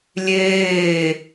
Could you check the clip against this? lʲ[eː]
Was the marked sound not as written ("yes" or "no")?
no